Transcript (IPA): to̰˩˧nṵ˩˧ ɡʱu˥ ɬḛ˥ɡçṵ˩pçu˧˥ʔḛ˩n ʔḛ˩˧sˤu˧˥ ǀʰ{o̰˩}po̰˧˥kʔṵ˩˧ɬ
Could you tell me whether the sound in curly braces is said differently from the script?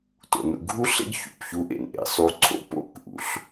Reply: yes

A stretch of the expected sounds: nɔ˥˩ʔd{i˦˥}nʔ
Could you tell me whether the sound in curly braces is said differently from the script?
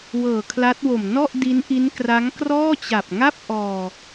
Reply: no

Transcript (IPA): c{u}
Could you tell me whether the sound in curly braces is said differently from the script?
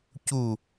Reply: no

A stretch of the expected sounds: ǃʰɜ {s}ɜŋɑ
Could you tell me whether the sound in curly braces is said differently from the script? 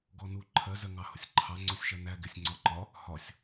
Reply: yes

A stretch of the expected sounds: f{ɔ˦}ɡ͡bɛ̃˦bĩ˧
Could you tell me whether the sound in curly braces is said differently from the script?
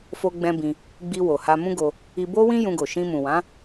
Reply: yes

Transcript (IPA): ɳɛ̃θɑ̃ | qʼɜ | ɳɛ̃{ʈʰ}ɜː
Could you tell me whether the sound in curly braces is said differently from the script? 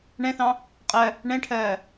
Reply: no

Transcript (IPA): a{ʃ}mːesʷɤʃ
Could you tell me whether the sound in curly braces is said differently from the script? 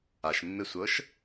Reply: no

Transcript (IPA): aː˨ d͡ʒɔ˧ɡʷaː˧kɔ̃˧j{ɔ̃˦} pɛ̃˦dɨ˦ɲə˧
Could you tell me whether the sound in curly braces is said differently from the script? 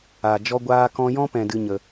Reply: no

